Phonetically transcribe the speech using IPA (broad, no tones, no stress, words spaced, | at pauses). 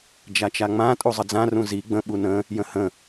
d͡ʒat͡ʃaŋ͡mã tʼuzˤəd͡zã rũzi ɡ͡bə̃ ɓunə̃ | jə̃hə̃